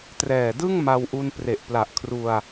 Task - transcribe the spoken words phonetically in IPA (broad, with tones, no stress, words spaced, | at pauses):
trɛː˨˩dɯ˥˩ŋ ma˧wʔu˧npre˨˩ʔ pla˨˩ʔkʰru˧a̯